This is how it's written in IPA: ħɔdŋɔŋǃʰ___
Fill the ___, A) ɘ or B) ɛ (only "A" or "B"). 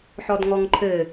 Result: A